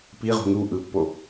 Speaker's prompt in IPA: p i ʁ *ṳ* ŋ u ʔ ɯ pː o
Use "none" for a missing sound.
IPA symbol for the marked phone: ṳ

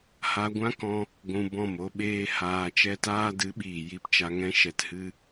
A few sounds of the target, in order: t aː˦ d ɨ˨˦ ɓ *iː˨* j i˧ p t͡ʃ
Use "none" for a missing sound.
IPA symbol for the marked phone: iː˨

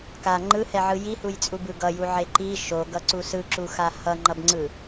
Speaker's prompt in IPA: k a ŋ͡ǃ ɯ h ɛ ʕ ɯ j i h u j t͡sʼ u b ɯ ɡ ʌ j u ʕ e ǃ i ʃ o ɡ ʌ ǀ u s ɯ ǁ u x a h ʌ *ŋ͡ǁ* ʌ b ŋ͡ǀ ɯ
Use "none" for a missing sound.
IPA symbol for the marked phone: ŋ͡ǃ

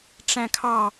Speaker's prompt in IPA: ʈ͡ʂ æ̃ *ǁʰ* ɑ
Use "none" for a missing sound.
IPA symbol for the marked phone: kʰ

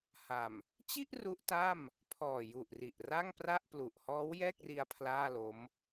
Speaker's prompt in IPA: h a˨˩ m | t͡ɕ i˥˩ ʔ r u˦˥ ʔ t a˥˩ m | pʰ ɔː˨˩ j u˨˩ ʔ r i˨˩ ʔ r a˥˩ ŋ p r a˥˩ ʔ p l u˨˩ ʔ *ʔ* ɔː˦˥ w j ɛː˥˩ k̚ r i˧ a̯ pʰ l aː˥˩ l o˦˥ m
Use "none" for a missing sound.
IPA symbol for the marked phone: h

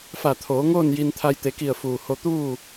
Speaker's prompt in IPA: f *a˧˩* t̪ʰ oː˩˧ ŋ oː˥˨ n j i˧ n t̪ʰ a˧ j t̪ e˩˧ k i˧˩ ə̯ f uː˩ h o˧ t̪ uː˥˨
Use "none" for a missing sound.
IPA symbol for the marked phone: a˧˩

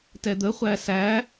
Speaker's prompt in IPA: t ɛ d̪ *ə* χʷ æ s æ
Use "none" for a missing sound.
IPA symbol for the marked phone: ə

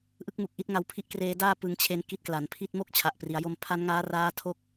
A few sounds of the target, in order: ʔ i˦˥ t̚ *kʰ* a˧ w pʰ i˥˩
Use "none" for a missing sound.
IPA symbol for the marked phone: ŋ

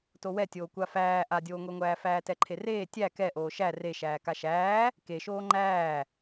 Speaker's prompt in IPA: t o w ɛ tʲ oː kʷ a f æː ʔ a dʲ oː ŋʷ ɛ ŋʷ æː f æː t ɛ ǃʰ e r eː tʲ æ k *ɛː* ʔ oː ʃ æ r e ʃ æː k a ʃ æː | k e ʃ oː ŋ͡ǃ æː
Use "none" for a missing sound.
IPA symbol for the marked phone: ɛ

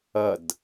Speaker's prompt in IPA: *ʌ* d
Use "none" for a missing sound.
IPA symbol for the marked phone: ʌ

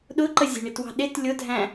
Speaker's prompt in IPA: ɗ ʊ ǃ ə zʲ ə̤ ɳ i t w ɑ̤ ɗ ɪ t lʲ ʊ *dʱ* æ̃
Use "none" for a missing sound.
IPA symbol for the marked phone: dʱ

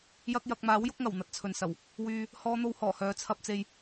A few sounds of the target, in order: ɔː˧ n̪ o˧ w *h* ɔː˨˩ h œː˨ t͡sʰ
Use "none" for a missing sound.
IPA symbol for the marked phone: h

